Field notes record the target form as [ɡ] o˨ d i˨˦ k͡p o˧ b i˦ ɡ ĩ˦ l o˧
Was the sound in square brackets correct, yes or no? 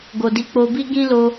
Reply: yes